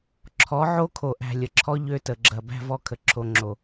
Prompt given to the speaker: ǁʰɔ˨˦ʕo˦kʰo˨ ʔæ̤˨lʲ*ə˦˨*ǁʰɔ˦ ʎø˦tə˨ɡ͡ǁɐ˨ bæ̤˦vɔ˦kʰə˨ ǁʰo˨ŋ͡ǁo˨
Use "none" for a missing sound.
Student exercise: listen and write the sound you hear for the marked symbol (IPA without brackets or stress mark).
ə˨